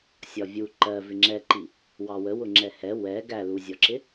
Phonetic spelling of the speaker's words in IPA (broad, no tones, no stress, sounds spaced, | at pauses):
sʲ ɒ vʲ u ǃ ɜ v ɪ ŋ͡ǁ ɛ ǃ i | w ɑ w ə w ʊ ŋ͡ǁ ɛ h ɛ w ɛ ɡ æ l u zʲ ɔ ǁ ɪ